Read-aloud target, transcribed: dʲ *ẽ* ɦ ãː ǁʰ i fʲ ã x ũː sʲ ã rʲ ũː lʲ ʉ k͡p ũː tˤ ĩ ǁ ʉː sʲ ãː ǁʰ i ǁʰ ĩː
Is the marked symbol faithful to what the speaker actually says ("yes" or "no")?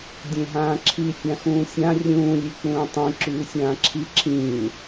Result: yes